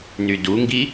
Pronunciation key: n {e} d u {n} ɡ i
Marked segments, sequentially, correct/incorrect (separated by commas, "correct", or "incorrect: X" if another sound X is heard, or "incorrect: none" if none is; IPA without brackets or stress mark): incorrect: y, incorrect: ŋ